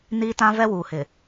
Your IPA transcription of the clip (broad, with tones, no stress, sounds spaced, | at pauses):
n iː˦ t ã˦ v ɛ˦ w uː˨ h ɪ˨